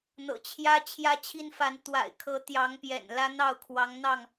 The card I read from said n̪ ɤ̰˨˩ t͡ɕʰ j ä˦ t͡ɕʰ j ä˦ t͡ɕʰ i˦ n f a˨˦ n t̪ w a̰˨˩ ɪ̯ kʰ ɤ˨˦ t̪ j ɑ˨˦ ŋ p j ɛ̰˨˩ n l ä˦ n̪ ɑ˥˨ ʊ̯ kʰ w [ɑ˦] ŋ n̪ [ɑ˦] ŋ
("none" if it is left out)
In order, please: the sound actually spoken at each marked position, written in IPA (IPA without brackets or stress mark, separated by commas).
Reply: ɑ˨˦, ɑ˥˨